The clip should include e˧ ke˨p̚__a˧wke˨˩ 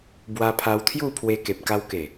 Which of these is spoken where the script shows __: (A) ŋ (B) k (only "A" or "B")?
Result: B